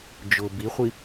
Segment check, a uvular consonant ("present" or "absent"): present